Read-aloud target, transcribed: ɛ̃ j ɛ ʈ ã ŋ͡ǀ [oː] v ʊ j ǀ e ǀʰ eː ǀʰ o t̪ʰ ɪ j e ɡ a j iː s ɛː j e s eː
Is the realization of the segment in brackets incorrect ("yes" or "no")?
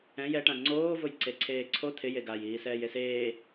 no